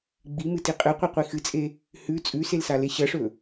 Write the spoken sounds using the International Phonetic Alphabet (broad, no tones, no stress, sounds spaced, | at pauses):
ɡ͡b i m ɨ t i qʼ ɨ qʷ i qʷ i x ɨ t͡sʼ e | h ʉ t͡sʼ ʉ s e l s a l e ɕ ɐ ʂ ɵ